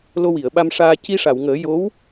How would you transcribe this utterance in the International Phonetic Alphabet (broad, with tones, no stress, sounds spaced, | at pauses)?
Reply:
l o˧ w i˨˩˨ ə̯ ɓ a˧ m ʂ aː˧ c i˧ ʂ a˨˩˨ w ŋ əː˨˩˦ j o˧˥ w